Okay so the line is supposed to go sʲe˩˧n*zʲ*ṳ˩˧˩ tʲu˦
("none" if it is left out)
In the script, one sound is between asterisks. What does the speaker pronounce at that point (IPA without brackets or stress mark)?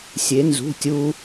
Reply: z